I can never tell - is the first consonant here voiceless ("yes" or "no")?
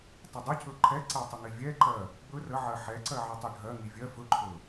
yes